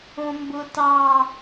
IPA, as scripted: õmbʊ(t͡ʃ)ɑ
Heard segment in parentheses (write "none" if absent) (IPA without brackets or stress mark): t